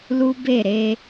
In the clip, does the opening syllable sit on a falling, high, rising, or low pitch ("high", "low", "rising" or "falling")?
high